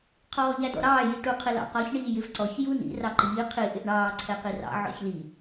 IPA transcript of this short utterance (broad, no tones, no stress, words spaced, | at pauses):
qʰɔːʎædɔ̰ɾɑː jiʈu qʰɪlɑ̰qɒç ɳiːjɪvǀɔç junḭ rɑǃiː qʰi ʔɪʔɳɑː ǀʰɛqirɑ̰ ʕɔ̰çli